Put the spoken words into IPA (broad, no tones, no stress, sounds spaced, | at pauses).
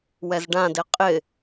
w ɛ z ɖ ã d ɪ qʼ ɪ